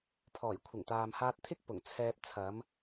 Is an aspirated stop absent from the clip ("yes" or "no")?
no